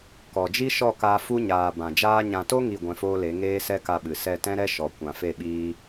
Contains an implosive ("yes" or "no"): yes